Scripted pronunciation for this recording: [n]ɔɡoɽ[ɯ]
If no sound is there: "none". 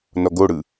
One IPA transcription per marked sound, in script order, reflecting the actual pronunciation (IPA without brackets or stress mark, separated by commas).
n, ɯ